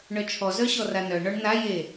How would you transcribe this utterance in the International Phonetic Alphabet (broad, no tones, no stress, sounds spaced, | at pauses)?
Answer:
ɳ œ t͡ʃʰ ɔ z œ ɕ ɔ r a n œ ɳ ɔ ɳ n a j e